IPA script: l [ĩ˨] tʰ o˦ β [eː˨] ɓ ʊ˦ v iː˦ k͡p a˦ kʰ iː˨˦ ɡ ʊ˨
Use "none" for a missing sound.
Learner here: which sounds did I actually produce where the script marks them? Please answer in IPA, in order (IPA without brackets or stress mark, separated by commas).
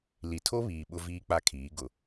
i˨, iː˨